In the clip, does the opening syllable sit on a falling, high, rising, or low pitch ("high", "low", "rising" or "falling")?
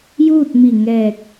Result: falling